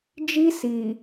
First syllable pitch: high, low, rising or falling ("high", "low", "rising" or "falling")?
high